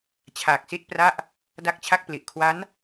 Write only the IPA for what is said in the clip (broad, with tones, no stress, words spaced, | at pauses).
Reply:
t͡ɕʰaː˨˩k̚si˥˩t̚pra˥˩ʔ | da˥˩k̚t͡ɕʰa˥˩k̚pli˨˩ʔ kʰwa˦˥n